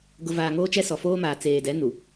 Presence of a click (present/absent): absent